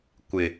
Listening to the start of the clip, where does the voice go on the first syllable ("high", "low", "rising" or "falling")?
low